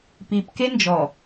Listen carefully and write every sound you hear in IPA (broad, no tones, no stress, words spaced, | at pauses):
pipke nd͡ʒɔ